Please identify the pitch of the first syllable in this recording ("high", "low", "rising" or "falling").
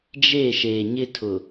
falling